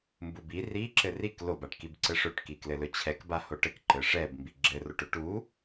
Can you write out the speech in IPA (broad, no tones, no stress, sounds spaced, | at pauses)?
m b u b i r i ǁ ɘ r i k l o b a ʈ k i b ǀ ɘ ʂ ɵ ʈ k i k l ɘ l ɵ t͡ɕʰ ɛ k b a h o ʈ ɘ k ǃ ɘ ʂ ɛ b m b i ɡ͡ǁ ɘ r o ʈ ɵ ʈ u